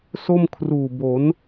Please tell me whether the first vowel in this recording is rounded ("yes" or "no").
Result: yes